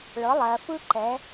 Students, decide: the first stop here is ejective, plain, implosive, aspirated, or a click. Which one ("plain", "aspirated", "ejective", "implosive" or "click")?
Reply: click